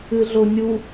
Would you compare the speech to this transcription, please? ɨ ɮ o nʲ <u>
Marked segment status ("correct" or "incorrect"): correct